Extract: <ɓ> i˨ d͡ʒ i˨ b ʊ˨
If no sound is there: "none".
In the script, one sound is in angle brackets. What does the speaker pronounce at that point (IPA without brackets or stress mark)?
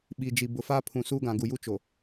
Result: ɓ